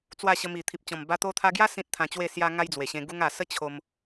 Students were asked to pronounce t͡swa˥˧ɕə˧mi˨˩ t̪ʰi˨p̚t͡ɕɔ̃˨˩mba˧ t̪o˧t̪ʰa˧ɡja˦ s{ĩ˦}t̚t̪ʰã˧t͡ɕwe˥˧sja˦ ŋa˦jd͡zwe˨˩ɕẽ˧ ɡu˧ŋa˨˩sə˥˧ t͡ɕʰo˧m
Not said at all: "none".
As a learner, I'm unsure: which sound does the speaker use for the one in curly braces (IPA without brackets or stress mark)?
ĩ˦